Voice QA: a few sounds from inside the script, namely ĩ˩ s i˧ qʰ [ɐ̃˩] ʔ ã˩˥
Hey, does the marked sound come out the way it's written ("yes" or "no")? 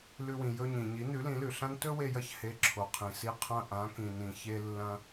no